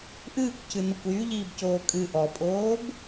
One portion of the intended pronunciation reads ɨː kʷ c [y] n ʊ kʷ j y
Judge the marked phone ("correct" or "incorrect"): incorrect